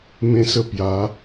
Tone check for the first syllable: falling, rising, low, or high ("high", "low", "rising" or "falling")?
high